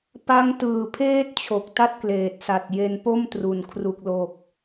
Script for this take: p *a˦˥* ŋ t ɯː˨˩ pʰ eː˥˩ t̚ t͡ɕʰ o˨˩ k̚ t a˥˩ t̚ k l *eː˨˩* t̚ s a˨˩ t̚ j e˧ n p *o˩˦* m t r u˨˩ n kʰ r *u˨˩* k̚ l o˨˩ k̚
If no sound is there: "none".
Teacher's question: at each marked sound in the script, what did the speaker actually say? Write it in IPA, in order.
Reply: a˦˥, eː˨˩, o˥˩, u˨˩

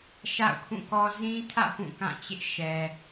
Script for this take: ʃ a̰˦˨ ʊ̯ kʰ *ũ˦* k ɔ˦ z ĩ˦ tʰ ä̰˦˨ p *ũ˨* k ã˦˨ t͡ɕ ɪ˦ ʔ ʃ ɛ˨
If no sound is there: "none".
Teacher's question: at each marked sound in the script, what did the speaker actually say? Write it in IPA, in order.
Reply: ũ˦˨, ũ˦˨

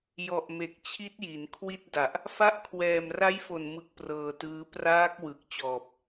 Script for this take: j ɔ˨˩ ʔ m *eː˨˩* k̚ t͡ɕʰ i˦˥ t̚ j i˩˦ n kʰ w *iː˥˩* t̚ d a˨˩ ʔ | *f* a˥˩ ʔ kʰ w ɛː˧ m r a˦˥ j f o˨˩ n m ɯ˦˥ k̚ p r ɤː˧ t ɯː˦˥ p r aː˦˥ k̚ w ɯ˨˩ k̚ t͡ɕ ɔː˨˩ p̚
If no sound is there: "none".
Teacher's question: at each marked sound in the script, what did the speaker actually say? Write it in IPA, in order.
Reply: e˨˩, i˥˩, f

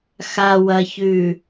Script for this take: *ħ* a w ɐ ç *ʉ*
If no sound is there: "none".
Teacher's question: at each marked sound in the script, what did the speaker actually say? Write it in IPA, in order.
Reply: x, ʉ

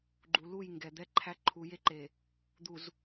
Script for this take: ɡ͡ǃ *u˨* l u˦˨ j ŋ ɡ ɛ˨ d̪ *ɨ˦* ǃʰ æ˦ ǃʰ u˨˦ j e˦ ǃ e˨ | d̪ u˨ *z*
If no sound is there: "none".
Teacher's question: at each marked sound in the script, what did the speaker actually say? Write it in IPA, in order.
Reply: u˨, ɛ˦, z

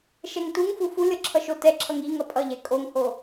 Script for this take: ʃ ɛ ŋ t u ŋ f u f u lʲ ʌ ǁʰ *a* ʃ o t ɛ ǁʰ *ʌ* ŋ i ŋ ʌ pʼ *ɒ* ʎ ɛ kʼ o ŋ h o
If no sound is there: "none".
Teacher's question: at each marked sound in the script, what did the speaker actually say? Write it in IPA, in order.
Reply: ʌ, ʌ, ʌ

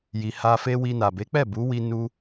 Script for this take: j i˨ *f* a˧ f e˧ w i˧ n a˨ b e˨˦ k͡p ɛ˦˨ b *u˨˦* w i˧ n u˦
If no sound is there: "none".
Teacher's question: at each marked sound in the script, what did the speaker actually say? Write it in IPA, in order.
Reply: h, u˨˦

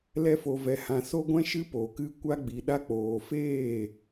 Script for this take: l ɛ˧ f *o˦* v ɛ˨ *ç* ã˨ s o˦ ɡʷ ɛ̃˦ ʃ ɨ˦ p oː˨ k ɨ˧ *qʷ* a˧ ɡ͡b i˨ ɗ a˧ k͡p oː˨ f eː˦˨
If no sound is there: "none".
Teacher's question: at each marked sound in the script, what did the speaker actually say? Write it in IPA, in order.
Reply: o˨, h, kʷ

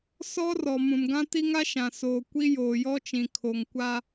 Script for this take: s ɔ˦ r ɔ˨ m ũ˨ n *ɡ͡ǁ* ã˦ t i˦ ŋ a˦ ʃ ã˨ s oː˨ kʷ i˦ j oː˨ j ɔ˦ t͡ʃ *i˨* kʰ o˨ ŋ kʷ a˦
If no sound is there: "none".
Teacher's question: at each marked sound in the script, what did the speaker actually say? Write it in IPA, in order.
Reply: ɡ, ĩ˨

